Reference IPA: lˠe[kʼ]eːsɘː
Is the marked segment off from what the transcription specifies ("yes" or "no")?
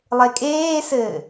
no